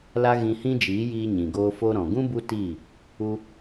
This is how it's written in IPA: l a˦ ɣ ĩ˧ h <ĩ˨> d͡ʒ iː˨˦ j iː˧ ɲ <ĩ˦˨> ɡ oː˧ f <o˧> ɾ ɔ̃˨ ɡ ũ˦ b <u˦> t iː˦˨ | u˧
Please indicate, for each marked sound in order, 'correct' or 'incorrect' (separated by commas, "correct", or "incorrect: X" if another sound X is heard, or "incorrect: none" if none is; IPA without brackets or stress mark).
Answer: incorrect: ĩ˦, incorrect: ĩ˨, correct, correct